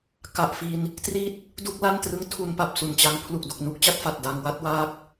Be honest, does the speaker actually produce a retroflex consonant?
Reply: no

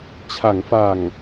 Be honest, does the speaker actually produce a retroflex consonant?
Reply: no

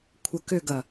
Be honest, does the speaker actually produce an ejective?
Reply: no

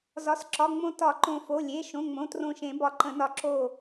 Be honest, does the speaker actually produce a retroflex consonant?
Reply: no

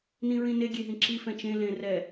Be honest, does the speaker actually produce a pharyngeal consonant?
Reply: no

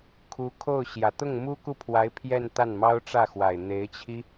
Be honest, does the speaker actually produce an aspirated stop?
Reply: yes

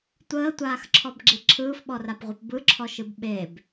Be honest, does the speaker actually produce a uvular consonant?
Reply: yes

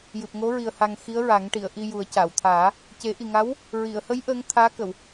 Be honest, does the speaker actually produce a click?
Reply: no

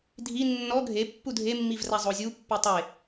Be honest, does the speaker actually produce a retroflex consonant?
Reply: no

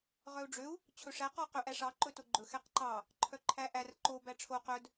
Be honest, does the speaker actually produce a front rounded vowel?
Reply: yes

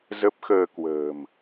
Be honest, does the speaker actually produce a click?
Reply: no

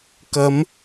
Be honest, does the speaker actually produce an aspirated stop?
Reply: no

